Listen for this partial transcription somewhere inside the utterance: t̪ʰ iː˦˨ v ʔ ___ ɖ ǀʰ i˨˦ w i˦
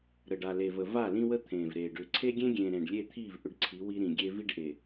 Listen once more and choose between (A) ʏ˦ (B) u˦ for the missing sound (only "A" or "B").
A